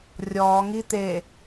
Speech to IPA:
rʲ ɔː ŋ i t̪ e

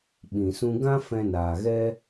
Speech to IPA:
ɓ ĩ˨ s ũ˦ ɡ ã˦ f ɛ̃˧ n aː˨ ɣ ɛ˦

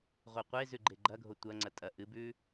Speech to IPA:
ʁʷ e qʷ e z ʉ ɡ͡ǃ e ɡ͡ǃ ɐ ɡʱ o tʷ ɐ ŋ͡ǀ ɐ tʼ ɐ ʔ ɨ b ʉ

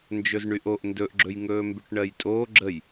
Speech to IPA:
n d͡ʒ ɵ z ɳ y ʔ o ʔ n d ɵ ʔ ɡ͡ǁ ɵ j ŋ ɵː m b y ʈ ɳ ɜ j tʼ oː ɡ͡ǁ ə j

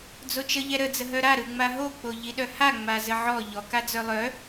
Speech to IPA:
d͡z o t͡ʃ ə ʎ ɛ ɾ ə d͡z ə ɦ œ ɾ a ɾ ɯ ŋ͡m a ɦ o k͡p o ʎ i ɗ œ h a ŋ͡m a z ə ʕ ɔ ʎ ɔ k a d͡z œ lˠ œ

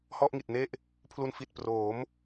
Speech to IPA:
h ɔ˥˩ ʔ ŋ i˨˩ t̚ n e˥˩ ʔ | pʰ l u˧ n f i˨˩ t̚ p r oː˩˦ m

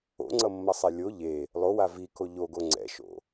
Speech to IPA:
o̰ ŋ͡ǀ ʌ mː ʌ sˤ ɛ lʲ o ʎ e | lˠ o w a v i k o ʎ o ɡ o ŋ͡ǀ ɛ̰ ʃ o̰

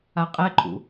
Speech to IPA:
a qʼ ɛ ǃʼ ṵ

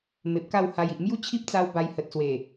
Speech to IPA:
m e˨ p̚ k a˥˧ w h a˧ j i˨ ʔ m j u˦ t͡ɕʰ i˦ p̚ t͡s a˧ w b a˧ j h ə˨ t̚ s w e˨˩

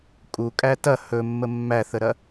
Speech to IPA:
kʼ u kʼ æ t ɐ h ɵ mː ə mː æ θ ə ɾ ɐ

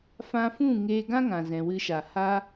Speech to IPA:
f ã˧ f ũ˦˨ ŋ eː˧ ɡ ã˦ ŋ ã˨ z ɛ̃˨ w ɨ˧ ʃ a˨ h aː˦

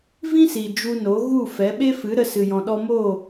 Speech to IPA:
v ĩ˦ s i˨ d͡ʒ u˧ n o˨˦ ɣ u˦˨ f ɛ˨˦ ɓ e˦ f ɨ˨˦ ɾ ə˧ s ɨ˨ j ɔ̃˨ ɗ ɔ˧ m oː˦˨

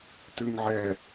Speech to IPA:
t̪ ʉ ŋ ʕ ɛ

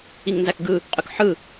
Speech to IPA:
i ŋ n z æ k ɡ ɯ | qʼ y k ħ ɯ

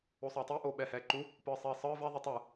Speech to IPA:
o sˤ eː tˤ i ʔ oː ɓ ɛː h ɛː ǃ u | p ɯː sˤ iː sˤ ɯː v ɛ ðˤ ɯ tˤ ɯ

